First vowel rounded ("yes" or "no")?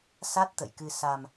no